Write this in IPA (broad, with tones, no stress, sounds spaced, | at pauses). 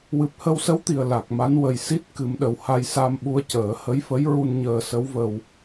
w ɨ˨˩ p̚ h ə˧ w s ə˧˥ w t̪ i˨˩ ə̯ l a˨˩ k̚ m a˧˥ n w ə˨˩ j s i˦˥ t̚ k ɨ˨˩˦ m ɗ ə˨˩ w h a˧ j s a˧ m ɓ u˧ ə̯ c əː˨˩˦ h ə˧˥ j f ə˧˥ j ɹ u˧ n ɲ əː˧ s ə˧˥ w v ə˧ w